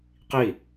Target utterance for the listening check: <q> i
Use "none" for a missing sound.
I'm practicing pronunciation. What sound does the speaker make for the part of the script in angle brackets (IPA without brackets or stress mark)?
q